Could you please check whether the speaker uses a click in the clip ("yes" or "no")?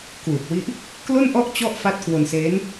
no